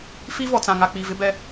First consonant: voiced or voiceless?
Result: voiceless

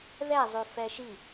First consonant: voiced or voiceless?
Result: voiced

